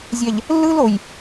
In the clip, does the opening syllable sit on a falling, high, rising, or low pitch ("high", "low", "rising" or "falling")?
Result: low